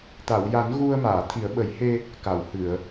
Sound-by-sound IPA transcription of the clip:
t̪a˨˩˨wja˨˩˦n ɣu˧ə̯ maː˨˩˨t̪ʰi˨˩˦ə̯ɓə˨˩˦jhe˧ | ka˨˩˨whɨ˨˩˨ə̯

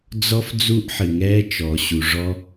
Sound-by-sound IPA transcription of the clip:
d͡zɔ˧f d͡zu˧ʔħɨ˩ŋɛ˧ t͡ʃɔ˩ɕu˩ ʐɔ˧

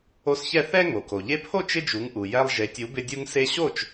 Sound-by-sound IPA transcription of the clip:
o˧sçɛ˥˩ θɛ˥ ŋo˩ko˩ ʎe˧pʰo˥˩ t͡ʃɪ˥d͡ʒu˩˥ŋʔu˩ jɛ˧lˠʒe˩˥tʲu˩˥bɪ˧ dʲu˧ŋse˧ɕo˥˩t͡ʃ

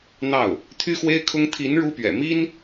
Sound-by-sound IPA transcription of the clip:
n̪ɑ˥˩ʊ̯ | t̪ʰy˥xwe˥ɪ̯kʰʊ˥ŋ t̪ʰi˧˥n ɻu˥pɥɛ̰˨˩ mi˥n

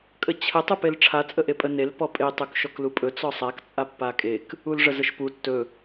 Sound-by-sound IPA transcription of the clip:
kʼət͡ɕʰə tˤupelʈ͡ʂʰa t͡sʼəʔepʼə nel pɔpʼe tˤɵkʃɔklupʼɵ t͡sɔsˤak t͡sʼapːakʼek | ulʐəzəʃpu tːɵ

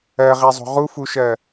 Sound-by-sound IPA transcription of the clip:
ɜʁezˤo̤ ʁufuʃɜ

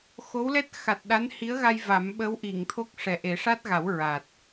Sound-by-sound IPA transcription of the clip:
xo˧˥wlɛ˦˥t̚ xa˨˩t̚ɗa˧˥nhi˧˥ə̯ɣa˧j va˨˩˦mɓəː˧˥wʔi˨˩˨ŋt̪ʰo˦˥k̚ ʂɛ˨˩ʔe˨˩˦ʂa˦˥t̚ɣa˨˩˦w ɹa˨˩t̚

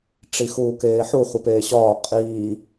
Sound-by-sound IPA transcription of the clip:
ʈ͡ʂixuːkeːħu χʷipeːɕɒː qʼiː

